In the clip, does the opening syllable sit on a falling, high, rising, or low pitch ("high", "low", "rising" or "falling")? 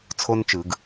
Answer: high